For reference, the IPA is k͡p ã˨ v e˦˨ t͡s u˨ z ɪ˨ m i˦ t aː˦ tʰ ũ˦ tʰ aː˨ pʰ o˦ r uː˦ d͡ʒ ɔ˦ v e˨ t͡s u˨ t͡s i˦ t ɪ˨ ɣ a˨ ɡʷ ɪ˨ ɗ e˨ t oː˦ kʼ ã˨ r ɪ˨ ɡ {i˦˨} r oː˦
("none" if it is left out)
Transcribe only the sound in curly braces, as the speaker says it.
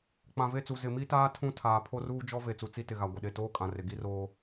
i˦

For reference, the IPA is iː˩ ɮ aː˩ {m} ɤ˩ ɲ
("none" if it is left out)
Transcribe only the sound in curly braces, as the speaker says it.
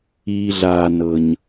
n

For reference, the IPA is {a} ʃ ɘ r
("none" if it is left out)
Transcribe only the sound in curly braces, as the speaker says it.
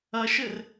ɐ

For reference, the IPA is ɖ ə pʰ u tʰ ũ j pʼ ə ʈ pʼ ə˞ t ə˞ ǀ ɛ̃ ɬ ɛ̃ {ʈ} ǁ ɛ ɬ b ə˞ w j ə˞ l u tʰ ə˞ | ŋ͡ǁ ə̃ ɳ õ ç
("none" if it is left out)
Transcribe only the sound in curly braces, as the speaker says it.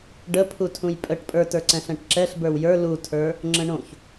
ʈ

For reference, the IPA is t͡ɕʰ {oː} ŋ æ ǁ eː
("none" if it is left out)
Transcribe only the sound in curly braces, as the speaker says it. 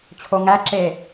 o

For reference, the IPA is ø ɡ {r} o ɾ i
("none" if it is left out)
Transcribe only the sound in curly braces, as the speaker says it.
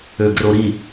r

